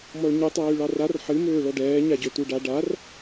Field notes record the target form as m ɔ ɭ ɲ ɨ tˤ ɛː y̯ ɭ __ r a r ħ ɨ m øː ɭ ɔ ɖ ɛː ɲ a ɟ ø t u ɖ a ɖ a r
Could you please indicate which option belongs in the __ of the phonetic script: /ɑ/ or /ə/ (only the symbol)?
ɑ